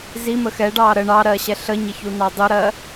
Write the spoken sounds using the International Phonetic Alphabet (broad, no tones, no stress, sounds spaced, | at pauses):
z i m ə x ɛ ɖ ɑː ɾ ə ɳ ɑ ɾ ɜː ɕ ɛ ɬ ə ɲ ə ç u n ɑ dˤ u ɾ ɜ